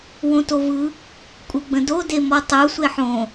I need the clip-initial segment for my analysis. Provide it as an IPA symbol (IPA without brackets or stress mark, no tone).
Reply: w